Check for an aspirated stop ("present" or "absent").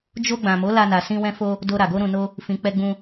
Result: absent